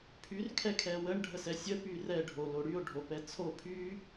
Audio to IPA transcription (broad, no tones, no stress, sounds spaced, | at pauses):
pʰ y r kʰ ɛ kʰ ɛ w ə ɳ ɖʱ ə s ɛ sʲ ə p y r ɛ ɖʱ o l o ɽ y o̯ ɖʱ o p ɛ t͡sʰ o pʰ y